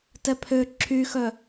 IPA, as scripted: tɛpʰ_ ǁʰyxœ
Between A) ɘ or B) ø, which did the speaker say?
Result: B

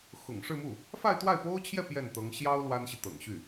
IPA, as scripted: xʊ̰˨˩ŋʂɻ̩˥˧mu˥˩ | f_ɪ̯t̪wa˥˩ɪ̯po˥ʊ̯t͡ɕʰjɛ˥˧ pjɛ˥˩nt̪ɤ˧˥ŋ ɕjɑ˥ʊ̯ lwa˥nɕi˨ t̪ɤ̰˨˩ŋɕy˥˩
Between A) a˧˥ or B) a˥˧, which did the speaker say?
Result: B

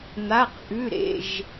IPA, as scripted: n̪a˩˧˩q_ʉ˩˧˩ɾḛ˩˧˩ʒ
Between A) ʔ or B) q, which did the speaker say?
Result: A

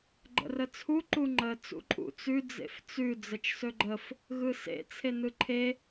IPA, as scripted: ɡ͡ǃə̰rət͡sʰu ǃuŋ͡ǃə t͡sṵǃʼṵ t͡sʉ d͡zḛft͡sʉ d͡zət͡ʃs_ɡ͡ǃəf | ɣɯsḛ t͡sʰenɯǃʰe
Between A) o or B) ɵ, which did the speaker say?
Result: B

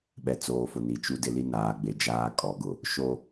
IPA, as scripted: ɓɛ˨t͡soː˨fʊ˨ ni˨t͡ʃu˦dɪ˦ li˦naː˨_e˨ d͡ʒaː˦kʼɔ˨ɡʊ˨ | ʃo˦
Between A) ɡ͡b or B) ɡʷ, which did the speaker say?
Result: A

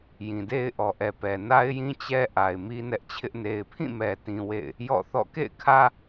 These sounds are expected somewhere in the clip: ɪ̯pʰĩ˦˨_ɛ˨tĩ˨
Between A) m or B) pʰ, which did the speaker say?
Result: A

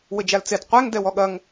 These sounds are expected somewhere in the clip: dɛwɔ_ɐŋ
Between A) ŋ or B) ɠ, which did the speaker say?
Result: B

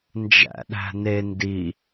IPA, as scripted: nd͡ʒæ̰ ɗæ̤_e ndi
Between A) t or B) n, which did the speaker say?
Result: B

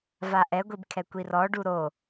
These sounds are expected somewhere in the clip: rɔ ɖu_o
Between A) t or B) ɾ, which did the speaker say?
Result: B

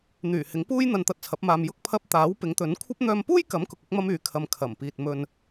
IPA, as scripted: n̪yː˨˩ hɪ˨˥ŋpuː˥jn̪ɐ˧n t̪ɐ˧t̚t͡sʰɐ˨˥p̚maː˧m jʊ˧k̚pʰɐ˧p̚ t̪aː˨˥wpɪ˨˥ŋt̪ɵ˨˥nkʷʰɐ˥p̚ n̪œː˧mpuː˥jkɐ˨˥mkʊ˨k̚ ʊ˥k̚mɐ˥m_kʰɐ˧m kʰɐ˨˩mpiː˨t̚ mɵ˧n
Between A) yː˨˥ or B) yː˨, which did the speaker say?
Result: B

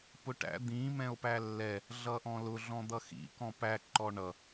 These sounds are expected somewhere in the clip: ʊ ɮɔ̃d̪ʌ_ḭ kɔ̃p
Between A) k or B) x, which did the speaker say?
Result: B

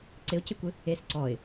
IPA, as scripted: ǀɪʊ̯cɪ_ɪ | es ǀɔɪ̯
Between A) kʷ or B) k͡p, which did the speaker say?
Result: A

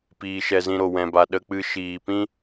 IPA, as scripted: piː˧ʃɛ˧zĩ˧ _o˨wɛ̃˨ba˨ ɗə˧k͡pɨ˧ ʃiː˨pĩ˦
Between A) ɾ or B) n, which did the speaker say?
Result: A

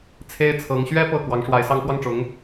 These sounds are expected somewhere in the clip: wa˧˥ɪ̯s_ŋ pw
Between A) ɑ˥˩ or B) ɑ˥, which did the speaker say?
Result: B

